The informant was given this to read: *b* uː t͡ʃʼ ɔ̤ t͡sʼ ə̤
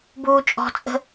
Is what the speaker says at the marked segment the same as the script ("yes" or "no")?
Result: yes